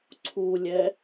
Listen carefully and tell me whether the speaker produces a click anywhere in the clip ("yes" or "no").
yes